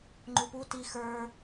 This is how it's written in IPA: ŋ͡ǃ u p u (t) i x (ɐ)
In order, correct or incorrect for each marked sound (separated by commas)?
correct, incorrect